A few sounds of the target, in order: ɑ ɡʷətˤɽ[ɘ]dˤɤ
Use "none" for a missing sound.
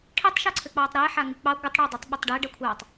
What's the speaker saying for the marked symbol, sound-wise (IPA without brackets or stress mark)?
ɛ